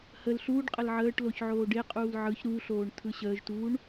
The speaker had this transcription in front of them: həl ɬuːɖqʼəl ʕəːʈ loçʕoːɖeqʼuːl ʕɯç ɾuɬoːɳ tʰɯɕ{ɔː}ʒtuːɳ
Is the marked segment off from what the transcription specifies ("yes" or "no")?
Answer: yes